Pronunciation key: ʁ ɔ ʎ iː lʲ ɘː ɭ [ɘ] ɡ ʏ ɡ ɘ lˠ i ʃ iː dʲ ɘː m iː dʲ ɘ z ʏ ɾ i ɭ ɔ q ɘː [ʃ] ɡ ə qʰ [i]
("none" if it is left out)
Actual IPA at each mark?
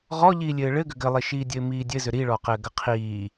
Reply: ɘ, none, iː

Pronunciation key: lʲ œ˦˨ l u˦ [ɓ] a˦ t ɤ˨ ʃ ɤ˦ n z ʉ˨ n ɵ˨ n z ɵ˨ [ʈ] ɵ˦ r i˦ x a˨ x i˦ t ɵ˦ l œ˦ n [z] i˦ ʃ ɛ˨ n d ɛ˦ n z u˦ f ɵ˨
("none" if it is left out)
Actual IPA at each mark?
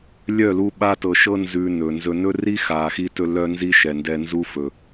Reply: ɓ, n, z

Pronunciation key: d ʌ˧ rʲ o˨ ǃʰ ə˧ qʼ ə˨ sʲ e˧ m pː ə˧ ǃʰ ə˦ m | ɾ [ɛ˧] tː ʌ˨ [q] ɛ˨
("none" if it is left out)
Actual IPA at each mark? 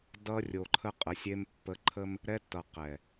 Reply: ɛ˧, q

